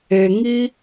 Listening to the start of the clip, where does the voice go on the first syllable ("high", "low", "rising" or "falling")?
low